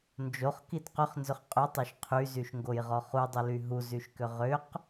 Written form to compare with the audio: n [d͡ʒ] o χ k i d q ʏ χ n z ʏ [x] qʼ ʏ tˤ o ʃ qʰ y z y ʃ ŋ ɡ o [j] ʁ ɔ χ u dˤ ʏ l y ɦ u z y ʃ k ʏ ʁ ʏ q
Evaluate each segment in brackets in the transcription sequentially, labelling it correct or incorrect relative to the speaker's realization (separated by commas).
correct, incorrect, correct